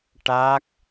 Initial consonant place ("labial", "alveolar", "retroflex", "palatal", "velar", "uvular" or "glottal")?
retroflex